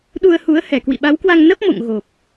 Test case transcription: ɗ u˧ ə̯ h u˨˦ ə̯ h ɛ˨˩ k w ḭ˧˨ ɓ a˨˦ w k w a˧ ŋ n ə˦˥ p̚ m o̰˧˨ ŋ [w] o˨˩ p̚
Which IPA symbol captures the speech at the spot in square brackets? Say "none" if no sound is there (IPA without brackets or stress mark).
ɣ